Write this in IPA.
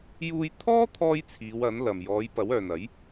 j uː˧ j t̪ʰ ɔː˥ t̪ʰ ɔː˥ j t͡sʰ iː˨˧ w ɐ˨˥ n l ɐ˨ m j ɔː˨˧ j p ɐ˨˥ w œː˨ n ɐ˨˥ j

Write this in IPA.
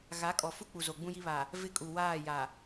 ɣ a˨˦ kʼ ɔ˨ f u˦ k͡p u˨ z o˨ ɡ͡b ũ˦ j i˦ β a˨ | v ɪ˦ kʼ u˨ w aː˦˨ j a˨

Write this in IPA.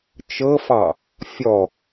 t͡ʃ ɤ f ɑ | fʲ ɔ

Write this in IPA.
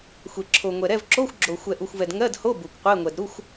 xʷ e˨ ǁʰ o˨ ŋʷ ɛ˨ ɾ ɛ˧˥˧ v ǁ o˧˥˧ xʷ ɡ͡ǁ o˨ xʷ ɛ˨ ʔ u˨ xʷ v ɛ˨ d ŋ ɜ˧˥˧ d h o˧˥˧ b u˨ kʷ qʷ e˧˥˧ ŋʷ ɛ˨ d ɾ u˧˥˧ xʷ

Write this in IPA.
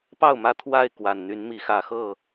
p ɑ˥˨ ʊ̯ m ä˥˨ t̪ʰ w a˥˨ ɪ̯ k w a˨˩ n n̪ y˨˦ n m i˨˦ x ä˨˩ x ɤ˥˨

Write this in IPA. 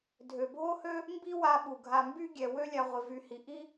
dʱ ø˩ bʱ o˥ h ø˥ | m b i˥ w a˦ ɓ u˩ ɡʱ a˨ m b y˥ ɡʲ ɛ˩ w ø˦ lʲ a˨ ʁʷ ɪ˩ v y˨ h i˩ ʔ i˥

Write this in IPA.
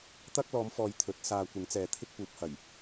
t̪ ɐ˥ k̚ l ɔː˨˧ m f ɔː˨ j t̪ʰ ɵ˨˥ t̚ s aː˧ kʷ ɪ˨˥ ŋ t͡s ɛː˨ t̪ʰ ɪ˥ k̚ p uː˨˥ p̚ h ɐ˨˩ j

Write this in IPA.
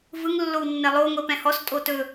v ɯ ŋ lː o w nː ɛ lˠ o ŋʷ ɛ p ɛ̃ h ɔ s tʼ o t ɵ

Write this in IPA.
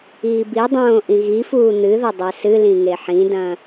iː b i dˤ õː ʔ ĩ ɣ i f uː n̪ ɨ ð ɘ dˤ ɛ s ɨ l ĩ ŋ e ħ ĩ d ɐ̃

